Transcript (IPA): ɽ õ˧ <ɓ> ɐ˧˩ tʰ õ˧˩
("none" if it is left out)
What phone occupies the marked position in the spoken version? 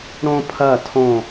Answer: pʰ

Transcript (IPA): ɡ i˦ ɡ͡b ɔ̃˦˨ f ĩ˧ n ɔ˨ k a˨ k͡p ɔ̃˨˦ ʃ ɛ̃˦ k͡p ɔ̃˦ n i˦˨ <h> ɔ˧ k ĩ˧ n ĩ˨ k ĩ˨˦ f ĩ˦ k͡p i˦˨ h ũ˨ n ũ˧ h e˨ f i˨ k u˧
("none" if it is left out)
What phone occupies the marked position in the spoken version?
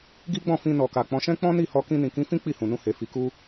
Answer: h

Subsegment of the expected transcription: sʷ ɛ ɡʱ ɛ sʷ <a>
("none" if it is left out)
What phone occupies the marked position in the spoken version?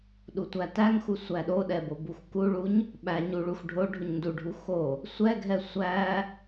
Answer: æ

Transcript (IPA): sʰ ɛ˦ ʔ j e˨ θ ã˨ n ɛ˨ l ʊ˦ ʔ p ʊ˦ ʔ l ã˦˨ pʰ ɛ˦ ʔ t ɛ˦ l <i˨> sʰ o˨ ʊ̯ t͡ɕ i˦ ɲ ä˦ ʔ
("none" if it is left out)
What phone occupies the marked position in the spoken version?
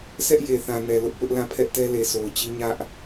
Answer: e˨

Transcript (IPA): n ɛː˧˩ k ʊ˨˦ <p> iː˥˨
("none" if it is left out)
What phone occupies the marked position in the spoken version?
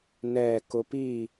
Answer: p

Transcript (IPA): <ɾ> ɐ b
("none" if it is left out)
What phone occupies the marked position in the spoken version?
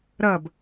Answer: ɾ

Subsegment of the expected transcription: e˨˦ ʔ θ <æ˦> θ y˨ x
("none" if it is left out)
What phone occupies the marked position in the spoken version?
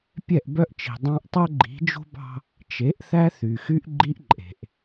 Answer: æ˦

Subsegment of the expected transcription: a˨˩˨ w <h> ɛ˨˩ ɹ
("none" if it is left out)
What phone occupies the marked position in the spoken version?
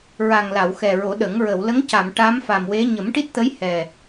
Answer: x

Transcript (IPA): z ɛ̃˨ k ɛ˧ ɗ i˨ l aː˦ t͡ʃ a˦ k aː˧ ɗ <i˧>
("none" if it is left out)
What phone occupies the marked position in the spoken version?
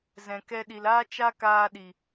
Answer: i˨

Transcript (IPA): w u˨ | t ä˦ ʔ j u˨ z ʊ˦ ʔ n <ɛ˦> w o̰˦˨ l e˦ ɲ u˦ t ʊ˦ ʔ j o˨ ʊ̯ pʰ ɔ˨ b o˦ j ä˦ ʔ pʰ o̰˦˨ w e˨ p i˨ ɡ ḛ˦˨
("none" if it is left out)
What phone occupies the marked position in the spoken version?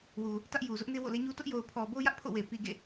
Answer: e˦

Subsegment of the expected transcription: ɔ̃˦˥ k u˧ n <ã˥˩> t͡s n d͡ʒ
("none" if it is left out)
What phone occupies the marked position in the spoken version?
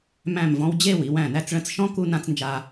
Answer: ã˧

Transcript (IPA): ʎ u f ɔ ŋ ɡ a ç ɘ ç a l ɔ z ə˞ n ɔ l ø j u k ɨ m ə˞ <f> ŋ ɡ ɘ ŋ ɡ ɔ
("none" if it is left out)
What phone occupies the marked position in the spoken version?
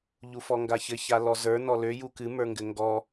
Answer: none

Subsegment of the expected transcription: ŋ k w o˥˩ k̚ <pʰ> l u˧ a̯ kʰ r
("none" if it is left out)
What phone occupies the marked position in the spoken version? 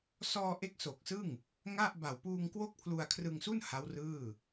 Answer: pʰ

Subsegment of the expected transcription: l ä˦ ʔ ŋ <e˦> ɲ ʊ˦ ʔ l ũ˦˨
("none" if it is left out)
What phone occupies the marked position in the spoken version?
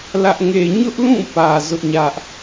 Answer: e˦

